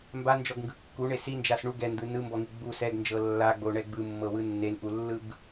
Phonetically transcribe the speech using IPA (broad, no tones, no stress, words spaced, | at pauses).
mband͡ʒɔɡŋɡɯ kːuɳe sind͡ʒas ɳu ɡɛnd̪ɯ nɯmbɔŋi ɡ͡bu sɛɡnd͡ʒɤ lːaɡ͡boɳɛ ɡ͡bɯmːɤwɯ nːenʔulːɯɡ